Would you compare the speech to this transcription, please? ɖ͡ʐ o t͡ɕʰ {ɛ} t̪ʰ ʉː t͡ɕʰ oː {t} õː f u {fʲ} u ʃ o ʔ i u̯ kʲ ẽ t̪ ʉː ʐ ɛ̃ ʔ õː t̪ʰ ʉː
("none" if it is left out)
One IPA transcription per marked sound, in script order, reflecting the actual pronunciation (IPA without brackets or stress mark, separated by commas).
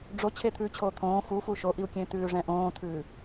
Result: e, t̪ʰ, f